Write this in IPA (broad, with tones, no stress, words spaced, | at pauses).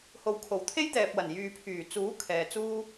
ho˨wkʰo˨˩w t̪ʰe˥jt̪ɛː˨p̚wɐ˨˩n jyː˨pʰyː˨˩ t͡suː˨˥ kʰɛː˨t͡suː˥